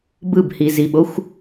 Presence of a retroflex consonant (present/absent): absent